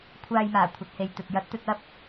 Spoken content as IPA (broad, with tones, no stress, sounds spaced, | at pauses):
kʷʰ aː˨ j m aː˨˩ kʷʰ ɐ˨ t̚ h e˨ j t̪ ɵ˨ t̚ j ɐ˨˥ t̚ t̪ ɵ˧ t̚ ɐ˥ p̚